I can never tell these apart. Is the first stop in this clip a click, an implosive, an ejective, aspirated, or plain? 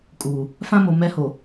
ejective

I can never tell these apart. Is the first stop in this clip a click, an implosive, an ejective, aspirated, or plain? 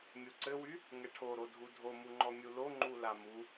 click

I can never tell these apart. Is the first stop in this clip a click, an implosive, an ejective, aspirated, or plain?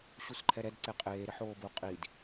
click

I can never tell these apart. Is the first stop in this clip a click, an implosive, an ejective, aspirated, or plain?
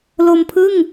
aspirated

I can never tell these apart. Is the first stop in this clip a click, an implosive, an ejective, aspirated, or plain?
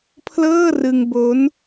aspirated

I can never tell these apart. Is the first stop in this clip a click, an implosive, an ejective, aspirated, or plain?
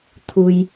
aspirated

